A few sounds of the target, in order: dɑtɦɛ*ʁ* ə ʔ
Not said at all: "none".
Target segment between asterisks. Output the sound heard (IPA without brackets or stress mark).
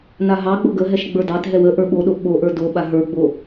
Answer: w